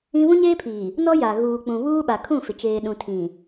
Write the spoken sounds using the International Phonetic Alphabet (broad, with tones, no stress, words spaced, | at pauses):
ĩ˦ βũ˦ɲeː˦pʰiː˨ | nɔ˦ja˨ ɣuː˨k͡pũ˨ βuː˦ɓa˨ kʰũ˦˨fɪ˨t͡ʃeː˨ɗũ˨ tʰĩ˨